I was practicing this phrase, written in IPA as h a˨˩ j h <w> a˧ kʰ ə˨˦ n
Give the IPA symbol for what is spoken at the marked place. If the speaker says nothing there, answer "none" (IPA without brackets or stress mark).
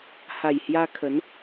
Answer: j